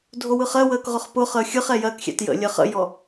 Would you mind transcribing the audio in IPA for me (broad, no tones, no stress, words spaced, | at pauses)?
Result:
dʱowɯχɜwəːk ʁʊχpʊχəː xʲɯχ ɛjɜkxʲɛ̰t jə̰ lʲɜχə̰jɔ